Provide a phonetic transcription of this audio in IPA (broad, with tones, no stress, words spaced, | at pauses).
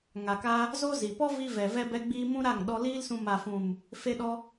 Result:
ŋa˨ka˧ | zo˦zi˨ pɔ˦vi˧vɛ˨ vɛ˧bɛ˧ ɡ͡biː˧ mũ˦ɾa˦˨ŋ ɗɔ˧liː˦lsũ˧ ma˨fũ˨m | fe˧ɗɔ˧